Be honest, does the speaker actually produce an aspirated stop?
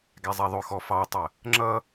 no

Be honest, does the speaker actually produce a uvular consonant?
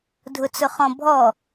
yes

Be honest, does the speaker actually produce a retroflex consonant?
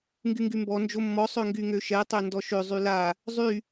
no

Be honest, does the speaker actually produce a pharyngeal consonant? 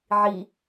yes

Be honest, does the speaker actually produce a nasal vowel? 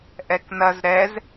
no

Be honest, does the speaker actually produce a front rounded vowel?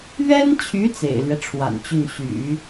yes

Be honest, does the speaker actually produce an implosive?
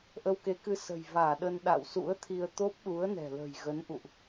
yes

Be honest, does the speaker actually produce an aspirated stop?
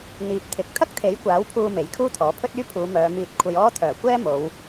yes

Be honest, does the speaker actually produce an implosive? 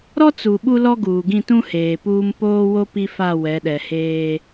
yes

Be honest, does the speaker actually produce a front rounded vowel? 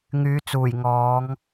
yes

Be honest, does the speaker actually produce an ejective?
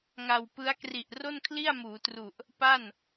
no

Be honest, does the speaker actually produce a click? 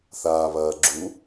yes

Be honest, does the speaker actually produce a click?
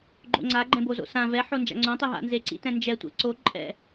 yes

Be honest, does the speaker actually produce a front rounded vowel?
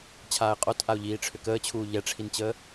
yes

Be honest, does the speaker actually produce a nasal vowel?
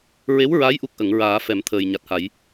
no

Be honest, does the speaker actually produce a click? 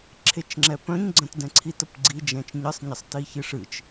yes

